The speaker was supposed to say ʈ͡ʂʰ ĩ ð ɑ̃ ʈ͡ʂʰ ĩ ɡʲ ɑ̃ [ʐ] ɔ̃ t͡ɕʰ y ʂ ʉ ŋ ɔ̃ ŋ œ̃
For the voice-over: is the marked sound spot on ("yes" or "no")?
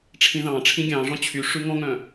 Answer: yes